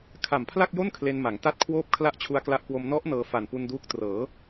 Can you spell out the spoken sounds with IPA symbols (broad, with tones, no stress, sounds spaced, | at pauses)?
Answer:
kʰ a˨˩ m pʰ l a˥˩ k̚ j o˥˩ n kʰ l e˧ n m a˩˦ ŋ t a˥˩ t̚ kʰ w oː˥˩ p̚ kʰ l a˥˩ ʔ t͡ɕʰ u˧ a̯ k l a˦˥ ʔ k w o˧ m n ɔ˦˥ ʔ n ɤː˧ f a˨˩ n p u˧ n d uː˦˥ k̚ t r ɤː˩˦